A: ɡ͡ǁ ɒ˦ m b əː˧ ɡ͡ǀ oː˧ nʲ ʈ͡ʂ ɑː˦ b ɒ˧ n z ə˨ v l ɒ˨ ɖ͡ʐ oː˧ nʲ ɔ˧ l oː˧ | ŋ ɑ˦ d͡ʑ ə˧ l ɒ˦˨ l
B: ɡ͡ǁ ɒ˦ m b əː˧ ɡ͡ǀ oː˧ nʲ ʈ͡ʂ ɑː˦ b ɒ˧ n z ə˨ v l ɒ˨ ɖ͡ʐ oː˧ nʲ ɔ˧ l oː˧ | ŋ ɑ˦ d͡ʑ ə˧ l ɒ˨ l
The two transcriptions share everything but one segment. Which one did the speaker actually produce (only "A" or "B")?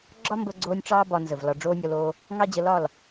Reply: A